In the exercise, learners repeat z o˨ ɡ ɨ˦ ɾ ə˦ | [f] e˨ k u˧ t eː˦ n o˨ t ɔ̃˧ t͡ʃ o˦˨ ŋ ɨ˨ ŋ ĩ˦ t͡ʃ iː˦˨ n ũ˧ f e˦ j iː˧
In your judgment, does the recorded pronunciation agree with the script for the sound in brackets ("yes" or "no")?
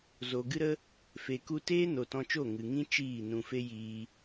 yes